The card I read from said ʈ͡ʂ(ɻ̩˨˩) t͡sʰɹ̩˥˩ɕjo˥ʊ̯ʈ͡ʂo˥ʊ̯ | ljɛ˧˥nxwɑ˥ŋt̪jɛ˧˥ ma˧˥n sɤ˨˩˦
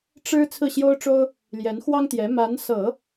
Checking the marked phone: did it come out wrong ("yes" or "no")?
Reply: yes